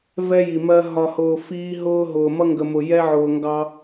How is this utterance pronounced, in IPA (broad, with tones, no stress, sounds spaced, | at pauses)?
v ɛ˦ j i˨ m ɜ˦ ɦ ɒ˨ h ʊː˨ f iː˦ ɦ ʊː˦ ɦ ʊː˨ m ʌ˦ ŋ ɡ ə˨ m ʊ˨ j ɛ˦ ʕ ʊː˨ ŋ ɡ ɑ˦